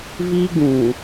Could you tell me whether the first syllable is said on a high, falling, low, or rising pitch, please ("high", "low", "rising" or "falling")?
high